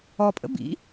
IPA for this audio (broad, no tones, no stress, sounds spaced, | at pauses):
ɔ pʼ ə̰ b ḭ